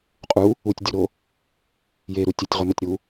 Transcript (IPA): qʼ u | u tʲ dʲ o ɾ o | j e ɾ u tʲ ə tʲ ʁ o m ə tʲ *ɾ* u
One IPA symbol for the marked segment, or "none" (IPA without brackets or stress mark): ɾ